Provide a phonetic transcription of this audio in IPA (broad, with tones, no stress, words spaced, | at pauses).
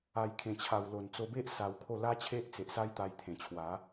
a˨˩jkʰẽ˨˩t͡ɕʰa˨˩wlo˨˩n t͡so˧be˦ʔ sa˧wkʰo˥˧ la˦t͡ɕʰe˦ʔt͡se˨ʔsa˦j t̪a˧jt̪ʰẽ˨˩t͡ɕʰwa˨˦